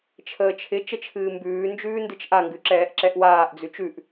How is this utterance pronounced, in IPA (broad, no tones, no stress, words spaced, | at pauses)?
t͡ʃʰəːt͡ʃʰɪ t͡ʃət͡ʃʰɨːmbʉː nd͡ʒʉːndɨt͡ʃʔaŋɡʉ ǁɛːʔǁɛʔwaːʔ d͡zʉt͡ʃʉʔ